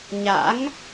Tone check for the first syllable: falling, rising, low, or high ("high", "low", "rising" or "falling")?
rising